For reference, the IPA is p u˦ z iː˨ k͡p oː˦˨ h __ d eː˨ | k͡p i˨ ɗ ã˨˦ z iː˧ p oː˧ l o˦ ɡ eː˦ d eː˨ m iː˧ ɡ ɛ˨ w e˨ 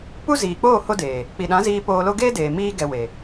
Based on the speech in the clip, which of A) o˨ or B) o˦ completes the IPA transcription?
B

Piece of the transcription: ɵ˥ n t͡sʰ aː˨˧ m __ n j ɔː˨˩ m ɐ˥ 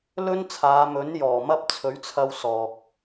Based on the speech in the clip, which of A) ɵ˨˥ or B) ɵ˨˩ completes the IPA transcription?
A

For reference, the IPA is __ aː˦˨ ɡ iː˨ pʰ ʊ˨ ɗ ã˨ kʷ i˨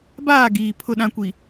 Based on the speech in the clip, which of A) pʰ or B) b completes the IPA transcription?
B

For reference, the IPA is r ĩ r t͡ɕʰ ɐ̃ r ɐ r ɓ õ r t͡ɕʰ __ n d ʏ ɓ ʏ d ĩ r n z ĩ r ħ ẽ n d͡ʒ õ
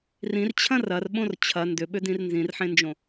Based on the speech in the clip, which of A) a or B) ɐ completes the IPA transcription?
B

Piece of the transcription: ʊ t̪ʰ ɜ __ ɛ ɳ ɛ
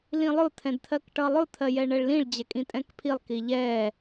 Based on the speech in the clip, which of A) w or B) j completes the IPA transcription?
B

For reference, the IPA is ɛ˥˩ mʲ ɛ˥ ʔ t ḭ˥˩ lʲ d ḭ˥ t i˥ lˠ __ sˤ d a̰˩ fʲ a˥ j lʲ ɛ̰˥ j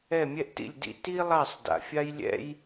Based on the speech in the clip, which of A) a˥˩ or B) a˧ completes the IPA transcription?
A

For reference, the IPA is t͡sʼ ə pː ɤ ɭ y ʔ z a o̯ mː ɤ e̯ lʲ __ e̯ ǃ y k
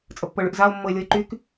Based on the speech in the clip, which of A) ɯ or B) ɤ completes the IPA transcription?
B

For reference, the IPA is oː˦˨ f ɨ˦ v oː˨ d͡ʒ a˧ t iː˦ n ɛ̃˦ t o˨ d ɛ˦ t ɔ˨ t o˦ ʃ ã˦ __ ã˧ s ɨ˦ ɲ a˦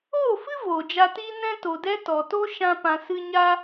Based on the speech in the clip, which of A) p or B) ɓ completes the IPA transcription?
A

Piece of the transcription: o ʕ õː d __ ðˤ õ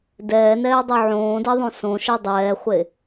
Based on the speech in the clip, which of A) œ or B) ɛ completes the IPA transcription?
B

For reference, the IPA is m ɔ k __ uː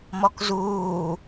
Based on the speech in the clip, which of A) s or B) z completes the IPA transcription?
B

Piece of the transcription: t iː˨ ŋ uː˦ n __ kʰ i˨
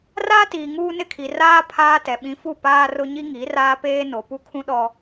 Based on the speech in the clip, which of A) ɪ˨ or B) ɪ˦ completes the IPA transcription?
B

